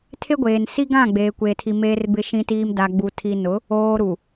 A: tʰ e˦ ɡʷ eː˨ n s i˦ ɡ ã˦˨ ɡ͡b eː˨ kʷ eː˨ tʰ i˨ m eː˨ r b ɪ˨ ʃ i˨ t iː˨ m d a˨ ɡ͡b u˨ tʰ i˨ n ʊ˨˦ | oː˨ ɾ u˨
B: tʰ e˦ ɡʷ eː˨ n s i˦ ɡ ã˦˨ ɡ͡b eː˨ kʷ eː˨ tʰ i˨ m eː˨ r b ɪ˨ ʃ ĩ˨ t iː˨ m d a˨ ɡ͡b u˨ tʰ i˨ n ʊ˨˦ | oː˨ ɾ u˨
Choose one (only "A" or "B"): B